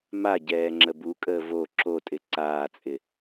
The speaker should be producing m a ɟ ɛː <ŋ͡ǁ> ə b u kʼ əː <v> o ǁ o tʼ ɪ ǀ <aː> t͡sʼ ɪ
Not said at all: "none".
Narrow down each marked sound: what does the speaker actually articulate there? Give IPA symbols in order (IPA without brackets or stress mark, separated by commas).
ŋ͡ǁ, v, aː